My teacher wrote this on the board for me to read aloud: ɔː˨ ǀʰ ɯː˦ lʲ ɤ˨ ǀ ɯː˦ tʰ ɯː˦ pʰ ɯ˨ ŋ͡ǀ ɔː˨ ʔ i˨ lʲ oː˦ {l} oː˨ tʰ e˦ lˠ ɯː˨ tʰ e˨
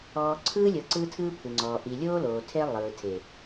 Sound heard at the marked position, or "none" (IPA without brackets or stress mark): l